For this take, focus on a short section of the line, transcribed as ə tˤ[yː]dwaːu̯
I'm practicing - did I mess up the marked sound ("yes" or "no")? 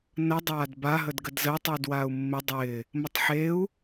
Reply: no